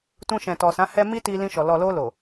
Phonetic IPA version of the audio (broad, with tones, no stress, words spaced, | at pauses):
tũ˧ʃɛ̃˨tɔ˨sã˨˦ hɛ˧ mi˦ti˧ lĩ˧ʃɔ˨ lɔ˨lo˧lo˨